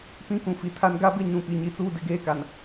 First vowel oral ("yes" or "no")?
no